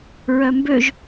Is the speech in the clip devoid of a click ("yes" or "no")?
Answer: yes